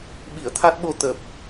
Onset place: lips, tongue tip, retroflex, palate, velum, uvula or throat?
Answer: lips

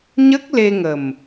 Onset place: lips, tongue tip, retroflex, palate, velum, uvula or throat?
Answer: palate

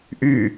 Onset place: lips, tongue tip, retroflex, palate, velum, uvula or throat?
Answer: throat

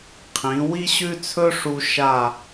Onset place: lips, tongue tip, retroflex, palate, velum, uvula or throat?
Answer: uvula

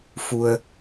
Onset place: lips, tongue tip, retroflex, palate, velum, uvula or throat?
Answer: lips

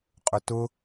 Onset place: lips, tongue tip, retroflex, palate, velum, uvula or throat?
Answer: uvula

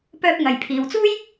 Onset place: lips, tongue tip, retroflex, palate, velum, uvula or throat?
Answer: lips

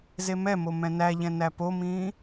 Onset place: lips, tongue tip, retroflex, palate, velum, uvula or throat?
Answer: tongue tip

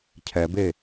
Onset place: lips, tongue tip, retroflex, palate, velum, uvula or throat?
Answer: palate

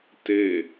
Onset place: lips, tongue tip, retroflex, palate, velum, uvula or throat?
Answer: tongue tip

